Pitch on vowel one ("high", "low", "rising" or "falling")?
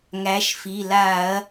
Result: rising